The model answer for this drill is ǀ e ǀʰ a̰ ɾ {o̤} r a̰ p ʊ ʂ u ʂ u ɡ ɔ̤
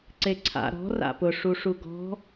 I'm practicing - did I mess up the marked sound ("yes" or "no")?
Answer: yes